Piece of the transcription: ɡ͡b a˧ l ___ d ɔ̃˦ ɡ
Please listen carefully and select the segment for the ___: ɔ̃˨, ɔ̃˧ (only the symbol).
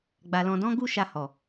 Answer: ɔ̃˧